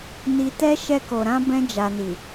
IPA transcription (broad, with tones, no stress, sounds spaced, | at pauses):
n i˨ t ɛ˧ ʃ ɛ˧ k o˨ ɾ ã˧ b ɛ̃˧ d͡ʒ a˨ n i˨